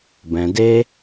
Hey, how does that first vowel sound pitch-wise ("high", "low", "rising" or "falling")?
low